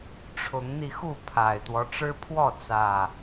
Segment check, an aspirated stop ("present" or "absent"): present